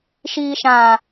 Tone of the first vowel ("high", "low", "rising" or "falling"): low